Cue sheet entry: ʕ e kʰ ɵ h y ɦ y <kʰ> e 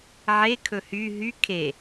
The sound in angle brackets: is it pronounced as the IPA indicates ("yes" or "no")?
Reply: yes